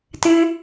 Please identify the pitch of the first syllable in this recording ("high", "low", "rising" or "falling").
high